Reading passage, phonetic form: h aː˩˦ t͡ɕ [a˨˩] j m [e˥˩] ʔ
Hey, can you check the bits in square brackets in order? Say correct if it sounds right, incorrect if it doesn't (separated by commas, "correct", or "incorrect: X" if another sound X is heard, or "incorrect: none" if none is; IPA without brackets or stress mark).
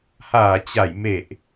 incorrect: a˩˦, incorrect: e˨˩